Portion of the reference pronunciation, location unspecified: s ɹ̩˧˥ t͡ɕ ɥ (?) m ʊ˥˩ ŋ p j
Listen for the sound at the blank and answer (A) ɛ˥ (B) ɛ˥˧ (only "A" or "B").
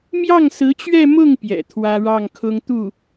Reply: B